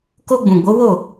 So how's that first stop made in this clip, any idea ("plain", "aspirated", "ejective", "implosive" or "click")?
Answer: plain